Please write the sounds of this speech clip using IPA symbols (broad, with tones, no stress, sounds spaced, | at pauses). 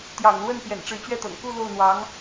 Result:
t̪ j ɑ̰˨˩ ŋ l w ə˥˩ n p j ɛ̰˨˩ n ʈ͡ʂ ɻ̩˧˥ t͡ɕ ɥ ɛ˥˩ t̪ ɤ̰˨˩ ŋ k u˥˧ l o˥˩ ʊ̯ n̪ w ɑ˧˥ ŋ